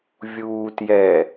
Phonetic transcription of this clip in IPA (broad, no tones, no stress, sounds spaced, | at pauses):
vʲ uː t j ɛ